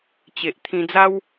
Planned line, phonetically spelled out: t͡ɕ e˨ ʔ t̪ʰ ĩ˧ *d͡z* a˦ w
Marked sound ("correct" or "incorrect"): correct